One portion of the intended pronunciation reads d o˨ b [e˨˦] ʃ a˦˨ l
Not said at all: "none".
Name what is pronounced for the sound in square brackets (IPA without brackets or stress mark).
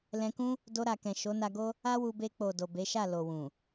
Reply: e˨˦